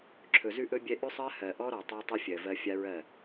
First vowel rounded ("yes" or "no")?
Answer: yes